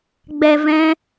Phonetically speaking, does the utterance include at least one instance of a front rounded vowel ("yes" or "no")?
no